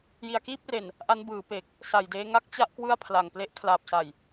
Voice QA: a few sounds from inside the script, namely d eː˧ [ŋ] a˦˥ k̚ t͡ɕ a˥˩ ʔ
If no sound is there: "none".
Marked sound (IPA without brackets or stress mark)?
ŋ